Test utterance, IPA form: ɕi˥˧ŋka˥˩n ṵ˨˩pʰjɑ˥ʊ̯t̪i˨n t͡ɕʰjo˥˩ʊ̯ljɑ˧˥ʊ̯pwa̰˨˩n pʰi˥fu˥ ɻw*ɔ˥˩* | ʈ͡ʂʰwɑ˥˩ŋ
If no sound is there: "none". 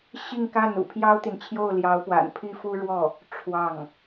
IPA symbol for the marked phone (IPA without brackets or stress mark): ɔ˥˩